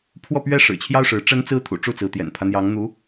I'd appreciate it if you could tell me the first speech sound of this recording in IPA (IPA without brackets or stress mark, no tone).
pʰ